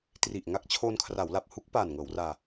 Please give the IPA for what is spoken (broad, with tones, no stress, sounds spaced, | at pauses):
t r i˨˩ ʔ ŋ a˦˥ k̚ t͡ɕʰ oː˧ n kʰ r a˩˦ w l a˨˩ p̚ h u˦˥ k̚ p aː˨˩ n ŋ ɤː˩˦ w r aː˧